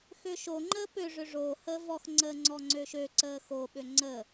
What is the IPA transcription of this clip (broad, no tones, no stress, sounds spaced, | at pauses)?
x ø ʃ o ŋ͡ǃ əː p ø ʐ ø ʐ oː h əː v ɔ x ŋ͡ǀ əː ŋ͡ǀ ɔ ŋ͡ǀ ø ʃ ø ǀ əː x o ɓ ø ŋ͡ǀ ə